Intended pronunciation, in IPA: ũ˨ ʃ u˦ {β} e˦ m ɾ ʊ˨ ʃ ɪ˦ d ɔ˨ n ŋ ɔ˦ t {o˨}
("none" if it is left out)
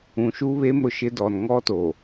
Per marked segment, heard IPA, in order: β, o˨

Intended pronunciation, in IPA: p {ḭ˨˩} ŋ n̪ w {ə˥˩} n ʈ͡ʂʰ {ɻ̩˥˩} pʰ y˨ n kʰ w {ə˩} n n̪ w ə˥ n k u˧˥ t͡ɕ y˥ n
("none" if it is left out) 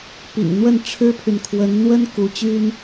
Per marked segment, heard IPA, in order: ḭ˨˩, ə˥˩, ɻ̩˥, ə˧˥

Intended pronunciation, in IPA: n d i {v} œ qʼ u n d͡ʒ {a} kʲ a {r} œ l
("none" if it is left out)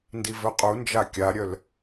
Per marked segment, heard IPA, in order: v, a, ɾʲ

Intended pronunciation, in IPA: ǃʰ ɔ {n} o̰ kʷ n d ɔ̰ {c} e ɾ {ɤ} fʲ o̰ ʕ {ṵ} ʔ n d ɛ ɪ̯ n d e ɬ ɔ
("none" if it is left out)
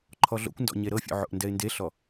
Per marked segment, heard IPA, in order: ɮ, ɲ, ɤ, o̰

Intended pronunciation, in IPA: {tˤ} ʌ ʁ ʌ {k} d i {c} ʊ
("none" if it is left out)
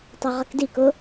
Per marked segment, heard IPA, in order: tˤ, k, k

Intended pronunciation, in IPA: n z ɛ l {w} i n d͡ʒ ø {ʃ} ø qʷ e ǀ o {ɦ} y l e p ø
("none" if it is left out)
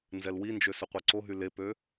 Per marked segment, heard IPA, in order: w, s, ɦ

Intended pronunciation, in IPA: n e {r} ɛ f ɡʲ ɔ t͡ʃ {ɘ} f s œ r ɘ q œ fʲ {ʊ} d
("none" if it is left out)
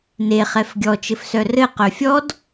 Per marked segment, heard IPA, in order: χ, ɘ, ɔ

